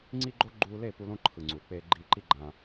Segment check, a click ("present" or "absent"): present